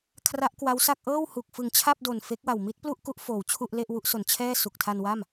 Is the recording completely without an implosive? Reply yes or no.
yes